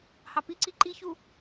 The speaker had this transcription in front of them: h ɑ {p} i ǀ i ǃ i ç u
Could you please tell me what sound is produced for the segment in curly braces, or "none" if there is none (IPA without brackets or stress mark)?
p